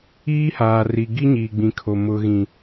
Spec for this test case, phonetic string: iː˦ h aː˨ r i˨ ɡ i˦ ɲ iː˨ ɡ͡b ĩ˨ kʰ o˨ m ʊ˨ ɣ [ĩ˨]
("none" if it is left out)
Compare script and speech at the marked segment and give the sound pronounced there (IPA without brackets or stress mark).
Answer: ĩ˨